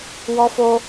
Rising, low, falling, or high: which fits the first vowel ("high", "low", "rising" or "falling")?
high